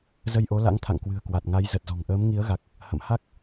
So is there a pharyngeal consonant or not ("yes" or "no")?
no